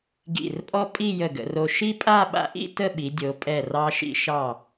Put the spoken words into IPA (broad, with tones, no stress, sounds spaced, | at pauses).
ɡ ḭ˧˩ r pʼ ɔ˥ pʼ i˥˧ j ə˧˩ ɡ ə̰˩˧ r o˧ ʃ i˥ pʼ a˥˧ ɓ a̰˧ ʔ ḭ˥˧ t ə˥˧ ɓ i˩˧ dʲ o˩˧ pʼ ɛ˧˩ r ɑ˧ ʃ ḭ˧ ʃ ɑ˧˩